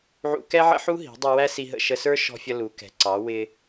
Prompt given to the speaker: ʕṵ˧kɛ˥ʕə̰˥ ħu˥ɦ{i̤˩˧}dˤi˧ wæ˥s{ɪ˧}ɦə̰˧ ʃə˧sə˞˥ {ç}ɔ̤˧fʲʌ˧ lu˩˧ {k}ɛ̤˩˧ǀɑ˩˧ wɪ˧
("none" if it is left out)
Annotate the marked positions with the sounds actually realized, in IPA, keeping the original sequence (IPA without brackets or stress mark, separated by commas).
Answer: i̤˩˧, i˧, ʃ, k